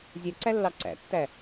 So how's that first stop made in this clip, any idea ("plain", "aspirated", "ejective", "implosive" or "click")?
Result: click